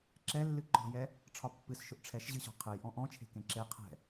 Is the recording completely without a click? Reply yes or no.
no